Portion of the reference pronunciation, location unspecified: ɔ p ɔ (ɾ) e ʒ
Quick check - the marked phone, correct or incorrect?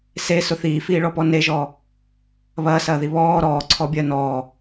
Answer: incorrect